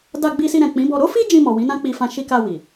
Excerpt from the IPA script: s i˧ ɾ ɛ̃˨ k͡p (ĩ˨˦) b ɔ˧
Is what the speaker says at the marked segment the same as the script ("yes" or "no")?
yes